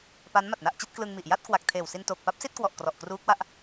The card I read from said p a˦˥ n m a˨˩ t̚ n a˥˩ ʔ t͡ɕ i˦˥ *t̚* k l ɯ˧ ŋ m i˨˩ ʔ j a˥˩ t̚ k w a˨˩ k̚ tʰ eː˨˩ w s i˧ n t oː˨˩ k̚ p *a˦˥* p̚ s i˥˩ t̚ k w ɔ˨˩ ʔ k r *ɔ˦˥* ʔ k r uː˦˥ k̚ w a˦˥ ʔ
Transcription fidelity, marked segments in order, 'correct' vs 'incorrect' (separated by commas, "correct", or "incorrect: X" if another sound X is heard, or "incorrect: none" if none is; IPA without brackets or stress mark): correct, correct, incorrect: ɔ˨˩